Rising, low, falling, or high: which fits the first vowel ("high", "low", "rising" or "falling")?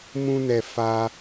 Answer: high